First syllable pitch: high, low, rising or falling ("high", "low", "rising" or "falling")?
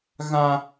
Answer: high